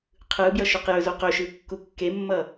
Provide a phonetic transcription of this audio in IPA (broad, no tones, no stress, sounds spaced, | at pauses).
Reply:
qʰ ɯ b j ʌ ʃ ɵ q j ɵ z o q ɵ ʃ ɯ kː u kː e mː ʌ